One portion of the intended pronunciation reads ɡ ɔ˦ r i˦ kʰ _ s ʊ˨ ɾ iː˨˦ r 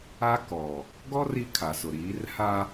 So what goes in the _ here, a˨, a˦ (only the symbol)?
a˨